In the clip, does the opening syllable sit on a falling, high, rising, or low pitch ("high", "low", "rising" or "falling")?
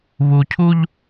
low